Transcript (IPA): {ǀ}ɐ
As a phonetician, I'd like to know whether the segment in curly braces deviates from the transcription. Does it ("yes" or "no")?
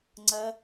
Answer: yes